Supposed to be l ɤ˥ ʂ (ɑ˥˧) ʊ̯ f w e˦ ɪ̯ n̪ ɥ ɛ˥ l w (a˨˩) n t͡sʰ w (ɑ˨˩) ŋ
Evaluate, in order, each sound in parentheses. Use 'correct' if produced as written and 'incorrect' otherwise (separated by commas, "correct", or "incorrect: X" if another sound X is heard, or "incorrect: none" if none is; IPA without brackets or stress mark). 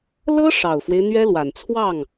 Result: incorrect: ɑ˨˩, correct, incorrect: ɑ˥˩